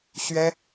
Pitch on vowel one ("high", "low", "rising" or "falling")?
high